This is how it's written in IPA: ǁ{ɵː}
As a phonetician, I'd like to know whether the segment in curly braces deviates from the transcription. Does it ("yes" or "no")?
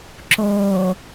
yes